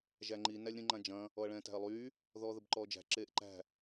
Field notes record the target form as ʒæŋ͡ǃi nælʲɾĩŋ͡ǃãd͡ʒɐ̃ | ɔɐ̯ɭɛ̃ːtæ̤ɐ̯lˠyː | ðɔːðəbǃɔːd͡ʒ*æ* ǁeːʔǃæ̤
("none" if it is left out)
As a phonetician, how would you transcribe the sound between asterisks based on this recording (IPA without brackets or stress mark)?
æ̤